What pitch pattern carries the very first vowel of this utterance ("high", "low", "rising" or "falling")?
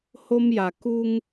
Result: high